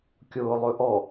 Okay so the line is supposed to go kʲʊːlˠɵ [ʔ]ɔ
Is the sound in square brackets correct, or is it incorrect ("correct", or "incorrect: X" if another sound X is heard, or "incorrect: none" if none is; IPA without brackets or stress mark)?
correct